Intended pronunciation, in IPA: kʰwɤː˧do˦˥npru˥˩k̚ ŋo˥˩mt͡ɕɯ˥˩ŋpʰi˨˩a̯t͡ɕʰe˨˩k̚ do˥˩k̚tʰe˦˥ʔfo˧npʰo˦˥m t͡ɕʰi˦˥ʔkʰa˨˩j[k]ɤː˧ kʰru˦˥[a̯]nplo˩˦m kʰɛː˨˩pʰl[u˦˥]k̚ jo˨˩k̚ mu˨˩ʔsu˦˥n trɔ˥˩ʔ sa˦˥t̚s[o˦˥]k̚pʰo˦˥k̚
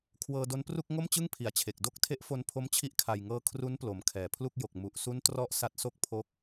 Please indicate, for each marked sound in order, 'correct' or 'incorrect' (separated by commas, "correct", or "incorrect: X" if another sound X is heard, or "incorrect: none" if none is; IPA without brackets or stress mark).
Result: incorrect: ŋ, incorrect: none, incorrect: u˥˩, incorrect: o˥˩